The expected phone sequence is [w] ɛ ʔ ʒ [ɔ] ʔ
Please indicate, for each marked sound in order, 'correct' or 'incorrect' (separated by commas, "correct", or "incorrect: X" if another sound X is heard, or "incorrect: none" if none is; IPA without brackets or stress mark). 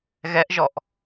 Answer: incorrect: ɣ, correct